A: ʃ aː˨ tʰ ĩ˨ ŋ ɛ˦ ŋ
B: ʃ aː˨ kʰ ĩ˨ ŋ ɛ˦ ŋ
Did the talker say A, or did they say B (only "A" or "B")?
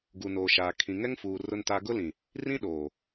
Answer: B